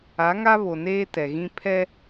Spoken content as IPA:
a˨˦ ŋ a˦ β o˨ n eː˦ t ɛ˨ ɣ ĩ˦ pʰ ɛ˦

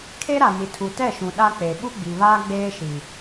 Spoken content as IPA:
kʰ e˦ ɾ a˨ n i˨ tʰ u˨ t ɛ˦˨ ʃ ũ˨ ɗ a˦ k͡p e˨ ɓ u˦ ɡ͡b i˨ β aː˦ ɡ͡b eː˦ ʃ i˨

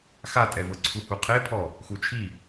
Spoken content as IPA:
x a tʼ ɛ v ɤ ǀʰ u h u qʰ e pʰ ɔ | x u t͡ʃʰ i

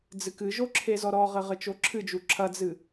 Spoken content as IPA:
d͡z ɨ k ɨ ʒ o ǁʰ e z ɔ ɾ ɔ ʁ ɘ ʁ ɘ t͡ʃ o ǁʰ ɨ d͡ʒ u ǁʰ ɐ d͡z ɨ

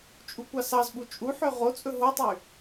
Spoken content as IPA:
t͡ʃʼ u kʷ ɑ s ɑ z ɓ u t͡ʃʼ u ħ ø ʁ o t͡sʼ ɵ ɦ o tˤ y

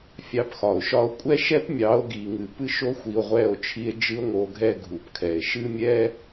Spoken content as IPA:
fʲ ɑ˨˦ p x ɒ˨ o̯ ʃ ɒ˧ o̯ kʷʼ ɛ˦ ʃ ɛ˦ p mʲ ɑ˨˦ o̯ ɡ i˨ ŋ ɨ˨ p ɨ˧ ʃ o˧ xʷ i˨ o̯ ʁʷ ɛ˦˨ o̯ t͡ʃʰ i˧ e̯ d͡ʒ ɨ˦ o̯ ŋ o˧ ɡʱ ɛ˦ ɡʱ u˨ p kʰ ɛ˨ e̯ ʃ ɨ˦ mʲ ɛ˦

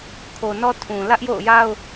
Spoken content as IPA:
kʰ o˨ n ɔ˦ tʰ ũ˨ l ä˦ ʔ j o̰˦˨ ʊ̯ j a˦ ʊ̯

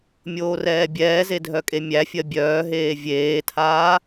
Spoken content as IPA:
mʲ oː r ɛː bʲ ɛː z e dʱ œ kʼ e mʲ æ fʲ ɜ bʲ œː ɦ eː vʲ eː tʰ aː

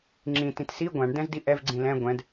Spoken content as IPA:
ŋ͡ǁ ĩ t ĩ t s i ɡʷ ã ɳ d ɛ̃ z d i ʔ ɛ v ɡ͡ǀ ĩ l ɛ̃ ɡʷ ɛ̃ d

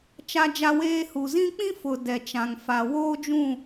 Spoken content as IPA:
t͡ʃ a˦ d͡ʒ a˦ w eː˦ h u˨ z ĩ˦ k͡p ĩ˦ f ʊ˨ d ɛ˨ t͡ʃ ã˨ ŋ f a˨ w oː˦ d͡ʒ ũ˦˨

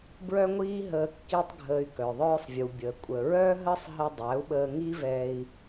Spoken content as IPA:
b ɹ œ˦ ŋʷ iː˦ ɦ əː˧ kː i˦ tˤ ɡʱ əː˧ y̯ k œ˨ ðˤ œː˦ sˤ vʲ u˨ bʲ əː˨ kʷʼ ə˨ ɹ œ˦ ɦ əː˦ sˤ ɦ ə˧ dˤ æ˨˦ u̯ ɓ əː˧ ŋ i˦ v ɛ˧ i̯

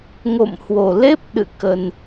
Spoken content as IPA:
ŋ o̰˧˨ m h w o˨˩ l e˦˥ p̚ ɗ ɨ̰˧˨ k ə˧ n

